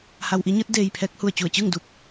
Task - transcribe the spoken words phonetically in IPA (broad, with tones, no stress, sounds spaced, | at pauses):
h a˧ w ʔ i˧˥ ɲ ɯː˧˥ t̚ d eː˧ j pʰ ɛː˧˥ k̚ h u˧˩ ə̯ t͡ɕ u˧˩ ə̯ t͡ɕ ɯː˥˨ ŋ d uː˥˨ p̚